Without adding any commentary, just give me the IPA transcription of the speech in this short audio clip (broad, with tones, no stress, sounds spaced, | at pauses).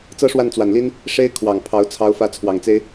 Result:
t͡s ɤ˥ ʂ w a˥˩ n t͡s w a˨˩ n l i˥ n | ʂ e˥ ɪ̯ kʰ w ɑ˨˩ ŋ pʰ ɑ˧˥ ʊ̯ t͡sʰ ɑ˧˥ ʊ̯ f ä˧˥ t͡sʰ w ɑ˨˩ ŋ t͡s e˥ ɪ̯